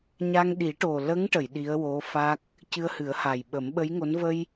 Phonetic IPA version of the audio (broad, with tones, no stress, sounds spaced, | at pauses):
ɲ a˧ ŋ ɗ i˨˩˦ ʈ o˨˩ l ə˧˥ ŋ ʈ ə˨˩˨ j ɗ i˧˥ ə̯ w o˧˥ f a˦˥ k̚ | c ɨ˧ ə̯ h ɨ˨˩˦ ə̯ h a˨˩ j ɓ ə˨˩˦ m ɓ ə˧˥ j ŋ o˧˥ n v ə˧ j